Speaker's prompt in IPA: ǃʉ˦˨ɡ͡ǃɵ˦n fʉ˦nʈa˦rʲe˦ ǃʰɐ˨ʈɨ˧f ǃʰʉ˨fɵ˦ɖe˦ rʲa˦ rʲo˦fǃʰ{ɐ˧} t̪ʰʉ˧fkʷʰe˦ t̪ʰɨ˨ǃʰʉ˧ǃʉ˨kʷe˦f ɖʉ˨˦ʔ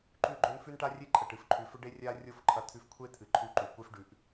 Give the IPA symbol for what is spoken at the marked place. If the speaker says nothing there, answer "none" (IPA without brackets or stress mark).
ɐ˧